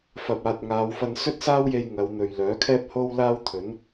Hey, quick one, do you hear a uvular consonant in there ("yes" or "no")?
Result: no